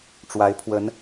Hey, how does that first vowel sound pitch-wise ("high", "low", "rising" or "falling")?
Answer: rising